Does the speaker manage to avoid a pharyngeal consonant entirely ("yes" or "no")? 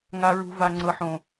no